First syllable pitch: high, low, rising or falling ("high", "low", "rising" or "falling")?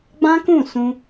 high